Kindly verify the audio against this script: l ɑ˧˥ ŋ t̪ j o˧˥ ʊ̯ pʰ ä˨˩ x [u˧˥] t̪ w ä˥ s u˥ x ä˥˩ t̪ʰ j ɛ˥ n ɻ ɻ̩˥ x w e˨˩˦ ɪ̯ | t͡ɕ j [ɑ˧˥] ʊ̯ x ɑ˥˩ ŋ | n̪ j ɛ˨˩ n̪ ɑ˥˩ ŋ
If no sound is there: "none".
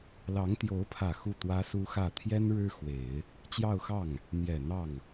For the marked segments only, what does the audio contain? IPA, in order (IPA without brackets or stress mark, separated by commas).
u˥˩, ɑ˥˧